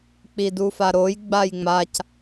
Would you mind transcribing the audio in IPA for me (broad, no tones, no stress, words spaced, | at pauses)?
k͡pidufaɾoj ɡ͡bajŋ͡mac